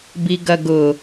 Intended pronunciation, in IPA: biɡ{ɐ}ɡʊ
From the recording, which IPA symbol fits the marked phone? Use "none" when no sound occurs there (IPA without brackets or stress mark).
ɐ